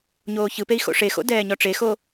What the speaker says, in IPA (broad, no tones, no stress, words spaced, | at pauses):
ɲoːçɯpei̯ xo̰ʂexo̰ dɛːɲɔʈ͡ʂexo